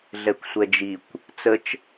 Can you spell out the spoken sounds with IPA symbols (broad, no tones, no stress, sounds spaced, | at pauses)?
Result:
ɮ ɛ kʷ sʷ ɛ d͡ʒ i kʷ | t͡s ə t͡ʃ